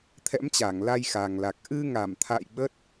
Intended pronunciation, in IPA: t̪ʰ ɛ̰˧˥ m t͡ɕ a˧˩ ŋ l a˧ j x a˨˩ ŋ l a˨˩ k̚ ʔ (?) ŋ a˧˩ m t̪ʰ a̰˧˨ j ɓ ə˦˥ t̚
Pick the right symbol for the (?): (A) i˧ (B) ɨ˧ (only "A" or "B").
B